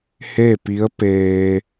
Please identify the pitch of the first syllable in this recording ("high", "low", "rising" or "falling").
falling